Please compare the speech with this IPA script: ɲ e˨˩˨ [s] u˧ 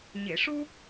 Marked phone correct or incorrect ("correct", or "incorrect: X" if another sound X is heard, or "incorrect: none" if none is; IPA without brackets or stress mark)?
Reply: incorrect: ʂ